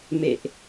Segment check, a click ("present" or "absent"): absent